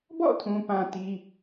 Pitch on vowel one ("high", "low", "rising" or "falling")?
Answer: falling